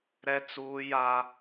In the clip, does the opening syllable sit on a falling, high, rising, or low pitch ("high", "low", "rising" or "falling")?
high